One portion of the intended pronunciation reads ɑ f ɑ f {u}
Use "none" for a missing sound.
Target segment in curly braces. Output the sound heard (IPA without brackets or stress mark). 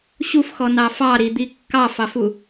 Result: u